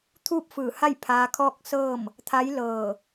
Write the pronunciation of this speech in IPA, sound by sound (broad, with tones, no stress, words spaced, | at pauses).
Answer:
t̪ʰuː˥˨p̚ fɯː˧˩ha˥˨j pʰaː˧kʰɔː˥˨k̚sɤː˥˨m | t̪ʰa˧˥jlɤː˧˩